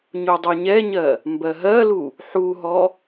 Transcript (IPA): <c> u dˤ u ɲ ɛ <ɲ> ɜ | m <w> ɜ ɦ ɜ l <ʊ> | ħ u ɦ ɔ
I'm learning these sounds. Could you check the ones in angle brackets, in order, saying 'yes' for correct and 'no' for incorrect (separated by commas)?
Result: no, yes, no, no